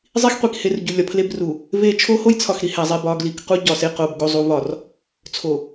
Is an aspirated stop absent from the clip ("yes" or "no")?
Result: no